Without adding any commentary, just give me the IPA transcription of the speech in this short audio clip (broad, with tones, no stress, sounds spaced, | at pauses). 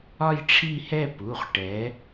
ɒ˥˧ j ʈ͡ʂʰ i˥˧ h ɛ˥˧ p u˩˧˩ χ ʈ ɛ˨˥